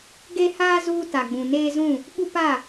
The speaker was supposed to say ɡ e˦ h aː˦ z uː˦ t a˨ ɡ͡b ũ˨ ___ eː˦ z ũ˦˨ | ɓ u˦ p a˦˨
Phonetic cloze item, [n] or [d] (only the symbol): n